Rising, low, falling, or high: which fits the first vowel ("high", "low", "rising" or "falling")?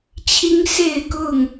high